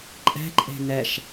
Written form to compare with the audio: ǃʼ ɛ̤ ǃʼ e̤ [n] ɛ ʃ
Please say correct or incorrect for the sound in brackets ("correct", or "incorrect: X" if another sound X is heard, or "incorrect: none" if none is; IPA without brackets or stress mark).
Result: correct